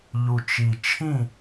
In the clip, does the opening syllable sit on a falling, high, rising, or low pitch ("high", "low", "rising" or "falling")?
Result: low